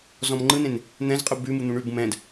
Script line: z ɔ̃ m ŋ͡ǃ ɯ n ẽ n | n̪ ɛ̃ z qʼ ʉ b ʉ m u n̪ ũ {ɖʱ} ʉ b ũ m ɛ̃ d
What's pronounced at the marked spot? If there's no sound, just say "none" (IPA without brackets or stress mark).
ɳ